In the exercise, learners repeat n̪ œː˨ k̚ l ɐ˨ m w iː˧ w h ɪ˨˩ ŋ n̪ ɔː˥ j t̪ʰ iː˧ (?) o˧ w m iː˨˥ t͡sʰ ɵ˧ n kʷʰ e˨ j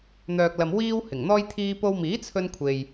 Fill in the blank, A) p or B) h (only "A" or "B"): A